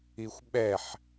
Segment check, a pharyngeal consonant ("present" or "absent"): present